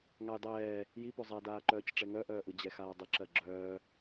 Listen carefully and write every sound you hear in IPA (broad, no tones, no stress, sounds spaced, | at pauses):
ŋ a j dˤ ɛː | j i p o zˤ a d aː ǃ œː c ʈ͡ʂ ɛ ŋ œ ʔ œː ʔ ɯ d͡ʑ ɛ x aː dˤ ə ǁ ɜ ɡ͡ǁ œː